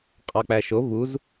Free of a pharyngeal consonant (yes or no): yes